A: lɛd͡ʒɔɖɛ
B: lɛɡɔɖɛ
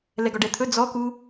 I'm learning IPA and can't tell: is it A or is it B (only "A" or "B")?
B